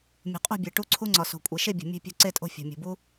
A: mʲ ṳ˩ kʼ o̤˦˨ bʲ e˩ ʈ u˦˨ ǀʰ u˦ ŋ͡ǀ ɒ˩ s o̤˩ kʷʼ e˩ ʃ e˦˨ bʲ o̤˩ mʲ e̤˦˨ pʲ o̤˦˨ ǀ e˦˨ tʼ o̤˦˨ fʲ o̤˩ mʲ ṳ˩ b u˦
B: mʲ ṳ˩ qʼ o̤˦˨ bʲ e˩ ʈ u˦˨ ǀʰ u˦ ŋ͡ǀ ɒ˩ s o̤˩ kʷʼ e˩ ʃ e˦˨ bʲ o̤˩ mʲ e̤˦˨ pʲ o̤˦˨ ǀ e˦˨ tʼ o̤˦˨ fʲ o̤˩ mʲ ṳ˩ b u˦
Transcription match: B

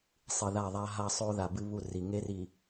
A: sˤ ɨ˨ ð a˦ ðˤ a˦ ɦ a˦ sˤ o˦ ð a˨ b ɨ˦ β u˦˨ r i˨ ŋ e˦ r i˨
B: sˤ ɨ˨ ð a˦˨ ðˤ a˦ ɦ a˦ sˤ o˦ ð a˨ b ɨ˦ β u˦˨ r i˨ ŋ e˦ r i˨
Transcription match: B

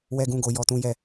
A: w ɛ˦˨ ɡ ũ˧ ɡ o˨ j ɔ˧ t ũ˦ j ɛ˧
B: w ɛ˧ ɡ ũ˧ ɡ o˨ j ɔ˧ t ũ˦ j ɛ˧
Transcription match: B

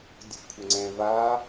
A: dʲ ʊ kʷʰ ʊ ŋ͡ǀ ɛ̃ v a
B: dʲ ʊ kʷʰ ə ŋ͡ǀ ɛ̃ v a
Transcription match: B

